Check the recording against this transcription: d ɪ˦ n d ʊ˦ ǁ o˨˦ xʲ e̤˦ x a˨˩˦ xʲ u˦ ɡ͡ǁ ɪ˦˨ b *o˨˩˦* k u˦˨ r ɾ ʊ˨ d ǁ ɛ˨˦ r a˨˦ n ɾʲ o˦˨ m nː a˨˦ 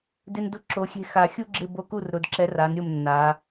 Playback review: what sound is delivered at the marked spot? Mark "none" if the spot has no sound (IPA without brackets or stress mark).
o˦˨